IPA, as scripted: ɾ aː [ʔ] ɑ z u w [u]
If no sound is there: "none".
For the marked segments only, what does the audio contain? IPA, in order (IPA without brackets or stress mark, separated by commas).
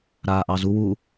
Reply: ʔ, u